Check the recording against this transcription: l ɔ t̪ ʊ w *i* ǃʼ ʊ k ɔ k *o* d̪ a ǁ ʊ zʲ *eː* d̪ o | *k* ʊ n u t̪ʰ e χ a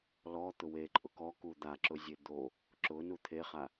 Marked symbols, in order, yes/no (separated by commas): no, no, no, no